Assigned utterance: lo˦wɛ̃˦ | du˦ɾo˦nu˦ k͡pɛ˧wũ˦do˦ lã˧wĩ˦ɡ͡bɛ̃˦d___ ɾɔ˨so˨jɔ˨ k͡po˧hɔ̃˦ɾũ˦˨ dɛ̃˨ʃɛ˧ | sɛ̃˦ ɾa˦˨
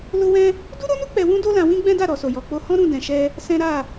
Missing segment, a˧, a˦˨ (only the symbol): a˦˨